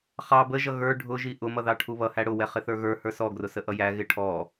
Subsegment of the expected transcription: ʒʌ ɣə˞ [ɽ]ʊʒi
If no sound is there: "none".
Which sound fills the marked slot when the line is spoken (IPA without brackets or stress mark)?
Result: ɖʱ